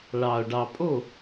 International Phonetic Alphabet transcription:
ɭ ɑ˨ o̯ ɖ ɑ˨ pʼ o˦˨

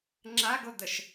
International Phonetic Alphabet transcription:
ŋ͡ǁ a ɡ o d̪ ə ʃ

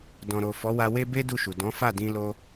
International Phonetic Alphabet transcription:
d ɔ̃˨ ɾ o˨ f ɔ˨˦ w a˧ w e˦ b e˦ d u˦˨ ʃ u˨ d ɔ̃˨˦ f a˦˨ d ĩ˧ l o˧

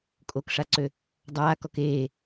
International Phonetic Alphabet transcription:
kʼ o k ʂ a ǀ ø | dˤ aː k ɔ k eː

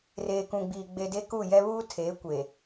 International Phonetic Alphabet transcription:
r eː˨ k ũ˨ ɡ͡b iː˨ ɡ͡b e˨ d e˦ k u˦˨ j ɛ˦ β uː˦ tʰ eː˨˦ kʷ e˨

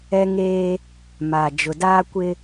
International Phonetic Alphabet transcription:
ɛ˦ ŋ eː˦ | m a˨ d͡ʒ ʊ˨ d aː˦ kʷ ɪ˦

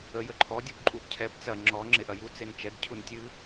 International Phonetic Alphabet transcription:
ə j ə ǃʰ ɔ dʲ u b ǃʼ u b cʰ ɛ b t͡s ɐ ŋ͡ǁ ɔ ŋ͡ǁ e ʔ ɐ j u t͡s e n t͡ʃ ɛ ɡ cʰ u n tʲ ɨ

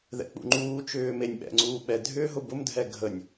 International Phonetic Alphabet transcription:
ð ɛ̰ k͡p ṵ ŋ͡ǃ uː t͡ʃ ʏː m e nʲ ɓ ɛ̰ ŋ͡ǀ uː ɓ ɛ dʱ ʏː ɦ ʊ b ʊ m dʱ ɛ ɡʱ ə nʲ

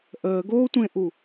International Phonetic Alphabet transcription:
ʔ əː ɡ oː tʷ ẽ ʔ u

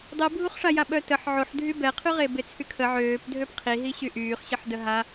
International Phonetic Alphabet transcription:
dˤ i bʱ u χ ʂ a j a ɓ œ t ə ħ ʕ o ħ dʱ y b ɛ qʰ y ʁ e b e t͡sʰ y kʰ ə ʕ øː p dʱ ø p qʰ i ɦ i ɕ y ʔ yː χ ɕ ə ħ d ə ɦ a

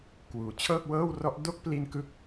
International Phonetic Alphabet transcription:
k w uː˩˦ t͡ɕʰ ɤː˥˩ k̚ w ɤː˥˩ w r ɔ˦˥ ʔ d o˥˩ k̚ p l i˧ n k ɯ˦˥ k̚

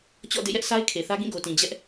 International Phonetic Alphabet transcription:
t͡ɕ ɔ̰˦˨ d ḛ˦˨ j ɛ˦ ʔ sʰ a˦ ɪ̯ kʰ e˨ θ ä˦ ɡ ĩ˦˨ ɡ o˨ t ĩ˨ d͡ʑ ɛ˦ ʔ

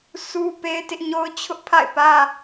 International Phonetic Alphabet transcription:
s u˦ p e˦ ɪ̯ t ɪ˦ ʔ ɲ o˦ ʊ̯ t͡ɕʰ ʊ˦ ʔ pʰ a̰˦˨ ɪ̯ p ä˦

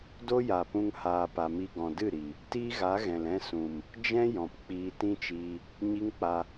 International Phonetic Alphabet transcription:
d o˦ j a˨ p ũ˧ ŋ h aː˨ p a˨ m i˧ ɡ ɔ̃˨ d ɨ˦˨ ɾ i˨ | t iː˦ ɣ a˨˦ ɣ ɛ̃˨ l ɛ̃˦ s ũ˨ m | d͡ʒ ɛ̃˦ j ɔ̃˨ p k͡p iː˧ t ĩ˦ t͡ʃ iː˧ | ɲ i˦ ŋ k͡p a˧

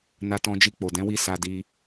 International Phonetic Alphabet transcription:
n a˧ t ɔ̃˧ d͡ʒ i˧ k͡p o˨ d ɛ̃˨˦ w i˦˨ s a˧ d i˧

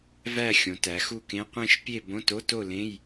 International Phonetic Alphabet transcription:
v æ˥˨ xʲ õ˩˧ t æ˩˧ x u˥˨ k ẽ˧˥˧ qʷ ẽ˥˨ ʃ pʲ e˥˨ b õ˧˥˧ t o˧˥˧ t o˥˨ l ẽ˧˥˧ j

